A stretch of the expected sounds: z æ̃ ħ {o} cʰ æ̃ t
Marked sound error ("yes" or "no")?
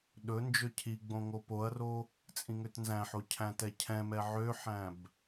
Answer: no